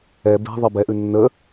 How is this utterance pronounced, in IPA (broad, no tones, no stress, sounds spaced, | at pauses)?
ɛ b e̤ ðˤ ɜ b ɛ ʔ ʉ nː ə